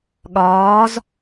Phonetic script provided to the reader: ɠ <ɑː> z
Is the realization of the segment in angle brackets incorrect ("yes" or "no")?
yes